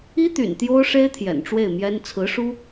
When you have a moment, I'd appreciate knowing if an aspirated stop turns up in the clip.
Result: yes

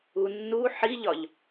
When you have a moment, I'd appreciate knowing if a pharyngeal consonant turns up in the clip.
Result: yes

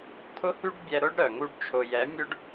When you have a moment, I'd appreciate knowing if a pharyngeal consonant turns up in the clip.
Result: no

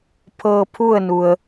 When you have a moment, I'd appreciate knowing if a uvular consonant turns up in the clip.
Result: no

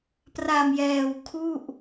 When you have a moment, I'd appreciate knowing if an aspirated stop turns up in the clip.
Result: yes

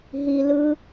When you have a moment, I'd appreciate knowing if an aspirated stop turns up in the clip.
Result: no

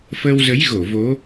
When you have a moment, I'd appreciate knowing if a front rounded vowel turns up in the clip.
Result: no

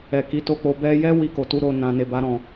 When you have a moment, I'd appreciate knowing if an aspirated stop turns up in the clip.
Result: no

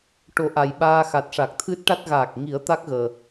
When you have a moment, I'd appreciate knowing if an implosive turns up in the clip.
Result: yes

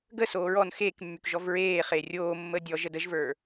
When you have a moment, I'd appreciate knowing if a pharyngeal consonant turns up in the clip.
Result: no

